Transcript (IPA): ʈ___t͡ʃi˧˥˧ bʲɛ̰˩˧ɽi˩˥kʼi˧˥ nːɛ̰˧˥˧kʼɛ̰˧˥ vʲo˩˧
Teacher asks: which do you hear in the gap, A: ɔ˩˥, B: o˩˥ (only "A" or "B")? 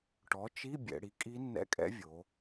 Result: A